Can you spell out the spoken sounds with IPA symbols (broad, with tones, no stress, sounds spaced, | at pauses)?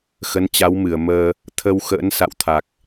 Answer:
x ə˨˦ n t͡ɕ a˨˦ w m ɨ˧˩ ə̯ m əː˧ | t̪ʰ ə˧ w x ə̰ː˧˥ n s a̰˧˨ w t̪ʰ a˨˩ k̚